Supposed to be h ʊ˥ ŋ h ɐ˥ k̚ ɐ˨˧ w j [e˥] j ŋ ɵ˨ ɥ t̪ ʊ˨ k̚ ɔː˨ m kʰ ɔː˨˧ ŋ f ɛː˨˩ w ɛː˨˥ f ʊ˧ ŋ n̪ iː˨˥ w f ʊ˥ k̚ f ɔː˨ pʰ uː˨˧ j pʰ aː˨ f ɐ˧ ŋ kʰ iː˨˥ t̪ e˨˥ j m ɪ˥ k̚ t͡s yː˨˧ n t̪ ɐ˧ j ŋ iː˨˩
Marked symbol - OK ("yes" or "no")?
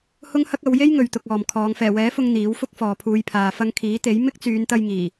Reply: yes